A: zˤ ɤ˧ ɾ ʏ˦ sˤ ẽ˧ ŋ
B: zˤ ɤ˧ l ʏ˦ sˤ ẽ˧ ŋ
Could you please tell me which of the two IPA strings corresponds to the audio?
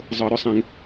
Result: A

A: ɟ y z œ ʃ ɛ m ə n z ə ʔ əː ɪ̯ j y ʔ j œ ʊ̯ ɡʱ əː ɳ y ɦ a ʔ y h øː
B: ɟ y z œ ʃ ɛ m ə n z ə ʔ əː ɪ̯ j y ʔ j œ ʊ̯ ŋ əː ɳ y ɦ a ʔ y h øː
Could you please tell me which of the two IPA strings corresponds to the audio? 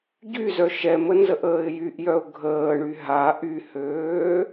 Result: A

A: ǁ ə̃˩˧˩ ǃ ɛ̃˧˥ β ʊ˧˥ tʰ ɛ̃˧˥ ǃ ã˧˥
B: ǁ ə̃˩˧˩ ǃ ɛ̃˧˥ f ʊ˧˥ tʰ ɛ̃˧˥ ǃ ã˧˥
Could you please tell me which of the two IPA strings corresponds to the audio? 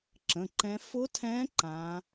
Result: B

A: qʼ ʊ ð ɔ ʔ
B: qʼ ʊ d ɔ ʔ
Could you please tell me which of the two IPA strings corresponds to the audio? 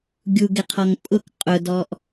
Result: B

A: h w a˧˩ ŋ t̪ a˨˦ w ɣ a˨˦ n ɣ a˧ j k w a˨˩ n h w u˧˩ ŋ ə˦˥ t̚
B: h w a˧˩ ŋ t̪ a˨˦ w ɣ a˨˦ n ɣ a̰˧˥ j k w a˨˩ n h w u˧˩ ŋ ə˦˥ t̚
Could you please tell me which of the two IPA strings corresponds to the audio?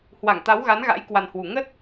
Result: B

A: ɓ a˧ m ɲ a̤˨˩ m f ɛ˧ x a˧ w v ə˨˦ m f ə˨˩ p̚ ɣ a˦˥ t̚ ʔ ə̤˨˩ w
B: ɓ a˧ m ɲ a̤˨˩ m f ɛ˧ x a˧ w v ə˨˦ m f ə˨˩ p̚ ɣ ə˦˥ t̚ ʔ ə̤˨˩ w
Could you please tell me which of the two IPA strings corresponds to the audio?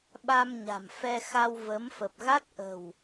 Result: A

